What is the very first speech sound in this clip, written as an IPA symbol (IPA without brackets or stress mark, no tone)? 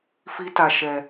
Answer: f